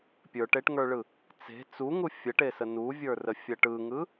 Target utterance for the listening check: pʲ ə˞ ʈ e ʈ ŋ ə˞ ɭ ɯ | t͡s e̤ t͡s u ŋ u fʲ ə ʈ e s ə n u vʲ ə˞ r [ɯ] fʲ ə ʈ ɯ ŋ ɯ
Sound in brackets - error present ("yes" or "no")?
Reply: yes